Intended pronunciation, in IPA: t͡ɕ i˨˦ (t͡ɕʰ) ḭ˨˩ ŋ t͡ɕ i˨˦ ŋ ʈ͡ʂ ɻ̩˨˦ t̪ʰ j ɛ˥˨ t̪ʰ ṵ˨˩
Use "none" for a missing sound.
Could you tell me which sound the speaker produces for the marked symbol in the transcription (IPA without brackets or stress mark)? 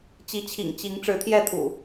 t͡ɕʰ